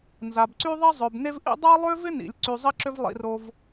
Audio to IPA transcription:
n z a˩ b ǀ y˥ ðˤ i˥ zˤ œ˩ b n e˥ v ʔ ḭ˥ dˤ a˥ lˠ ø˥ v ɪ˥ n ḭ˩ lʲ ǀ y˩ zˤ i˥ ǁ ʏ˥ v lˠ ḭ˩ r o˩ v

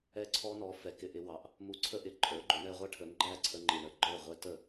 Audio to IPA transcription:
ɛ˥ ǀʰ ɔ˥ n ɔ˩˥ f ɛ˩ k ɪ˥ ʔ ɪ˩˥ w ɑ˩˥ ʔ | m u˧ ǀʰ ə˥ ʔ ɪ˩ ǃʼ ə˞˩˥ ɡ͡ǃ ʊ˩˥ ɳ ɛ˧ ʁʷ ʌ˥ ʈʰ ə˩˥ n ɡ͡ǃ æ˥˩ ǀʰ ə˧ ŋ͡ǃ i˩ ɳ ə˩ ɡ͡ǃ ə˞˥˩ ʁʷ ɛ˥ t ə˥˩

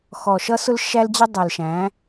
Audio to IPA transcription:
x ɔ˨ ʃ ʌ˦ s ʊ˦ l ʃ æ˦ l d͡ʑ ʌ˦ dˤ ə˞˨ l ʃ æ̃˨˦

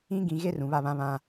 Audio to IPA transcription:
ĩ˦ ɡ ĩ˨ ɣ e˦ r ũ˨ β a˦˨ β ã˦ β ã˦

